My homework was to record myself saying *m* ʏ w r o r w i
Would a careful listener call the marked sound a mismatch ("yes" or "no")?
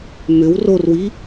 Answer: no